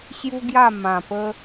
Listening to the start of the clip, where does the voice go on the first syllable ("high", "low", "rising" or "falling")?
high